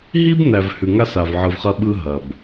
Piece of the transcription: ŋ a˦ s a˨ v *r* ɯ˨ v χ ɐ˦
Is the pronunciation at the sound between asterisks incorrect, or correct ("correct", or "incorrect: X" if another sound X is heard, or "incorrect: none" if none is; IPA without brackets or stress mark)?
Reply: incorrect: ʕ